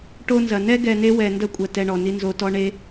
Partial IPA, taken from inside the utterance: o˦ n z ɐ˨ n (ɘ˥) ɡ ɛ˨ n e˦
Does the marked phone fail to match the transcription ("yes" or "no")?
yes